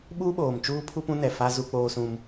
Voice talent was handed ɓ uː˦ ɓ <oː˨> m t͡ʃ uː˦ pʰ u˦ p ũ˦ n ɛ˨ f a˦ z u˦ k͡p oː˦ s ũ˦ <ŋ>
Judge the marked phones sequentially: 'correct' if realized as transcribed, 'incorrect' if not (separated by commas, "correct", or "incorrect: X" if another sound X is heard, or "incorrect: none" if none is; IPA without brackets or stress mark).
correct, incorrect: m